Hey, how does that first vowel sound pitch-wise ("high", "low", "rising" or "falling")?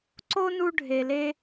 high